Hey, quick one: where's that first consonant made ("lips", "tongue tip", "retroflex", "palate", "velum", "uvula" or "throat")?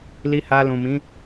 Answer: tongue tip